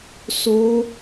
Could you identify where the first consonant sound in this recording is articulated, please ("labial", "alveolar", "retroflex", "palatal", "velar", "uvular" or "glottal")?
alveolar